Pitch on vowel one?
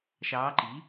rising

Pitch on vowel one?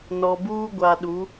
low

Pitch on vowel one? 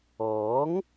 rising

